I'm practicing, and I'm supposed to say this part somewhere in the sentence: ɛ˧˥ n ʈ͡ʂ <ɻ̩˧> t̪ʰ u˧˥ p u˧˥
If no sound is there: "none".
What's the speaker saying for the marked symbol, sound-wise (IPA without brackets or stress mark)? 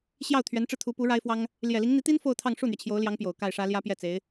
ɻ̩˧